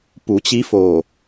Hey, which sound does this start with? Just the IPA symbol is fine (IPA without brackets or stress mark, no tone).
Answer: p